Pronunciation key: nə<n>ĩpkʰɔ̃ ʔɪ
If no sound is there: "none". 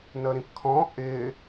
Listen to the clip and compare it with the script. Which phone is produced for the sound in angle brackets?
ɾ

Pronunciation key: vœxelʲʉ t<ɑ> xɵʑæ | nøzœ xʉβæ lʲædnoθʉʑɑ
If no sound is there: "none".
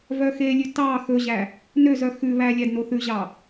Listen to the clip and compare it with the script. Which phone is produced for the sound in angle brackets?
ɑ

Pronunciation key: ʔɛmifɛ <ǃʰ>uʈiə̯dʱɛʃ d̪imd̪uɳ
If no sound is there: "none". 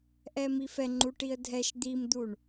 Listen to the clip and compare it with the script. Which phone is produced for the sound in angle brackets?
ŋ͡ǃ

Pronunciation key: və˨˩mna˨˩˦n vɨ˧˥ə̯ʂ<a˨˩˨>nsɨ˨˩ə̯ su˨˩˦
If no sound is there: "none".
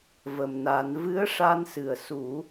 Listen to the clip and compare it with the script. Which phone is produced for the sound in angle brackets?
a˧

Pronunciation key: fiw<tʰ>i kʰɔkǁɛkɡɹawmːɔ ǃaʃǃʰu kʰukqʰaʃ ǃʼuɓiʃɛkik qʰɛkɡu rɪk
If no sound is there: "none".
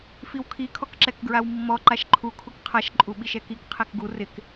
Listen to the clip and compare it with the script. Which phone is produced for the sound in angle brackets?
kʰ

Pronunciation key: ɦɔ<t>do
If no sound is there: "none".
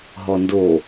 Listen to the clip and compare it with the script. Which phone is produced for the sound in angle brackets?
n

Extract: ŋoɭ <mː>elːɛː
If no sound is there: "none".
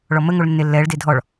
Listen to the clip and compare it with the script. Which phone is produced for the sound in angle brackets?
nː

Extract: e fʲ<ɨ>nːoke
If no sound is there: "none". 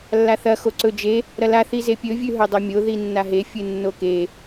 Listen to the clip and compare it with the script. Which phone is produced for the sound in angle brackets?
ɨ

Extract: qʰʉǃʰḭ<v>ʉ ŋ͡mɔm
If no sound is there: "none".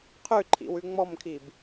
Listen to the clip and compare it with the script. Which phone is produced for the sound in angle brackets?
w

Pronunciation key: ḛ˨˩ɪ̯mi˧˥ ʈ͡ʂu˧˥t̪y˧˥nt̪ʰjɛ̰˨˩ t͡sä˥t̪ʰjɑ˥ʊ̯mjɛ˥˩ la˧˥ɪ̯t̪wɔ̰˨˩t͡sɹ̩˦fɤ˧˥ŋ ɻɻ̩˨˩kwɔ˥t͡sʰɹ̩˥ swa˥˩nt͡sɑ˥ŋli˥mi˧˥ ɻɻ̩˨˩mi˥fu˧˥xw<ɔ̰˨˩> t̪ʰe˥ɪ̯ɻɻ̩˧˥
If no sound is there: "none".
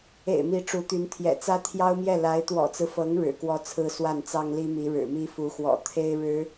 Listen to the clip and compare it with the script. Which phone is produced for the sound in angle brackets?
ɔ̰˨˩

